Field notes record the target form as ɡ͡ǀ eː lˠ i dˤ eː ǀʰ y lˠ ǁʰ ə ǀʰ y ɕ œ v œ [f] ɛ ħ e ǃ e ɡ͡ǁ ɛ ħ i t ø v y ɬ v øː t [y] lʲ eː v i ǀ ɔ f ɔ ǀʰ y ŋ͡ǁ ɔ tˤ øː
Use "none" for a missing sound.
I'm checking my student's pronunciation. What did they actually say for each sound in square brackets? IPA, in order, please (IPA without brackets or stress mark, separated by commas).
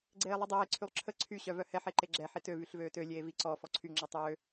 h, ø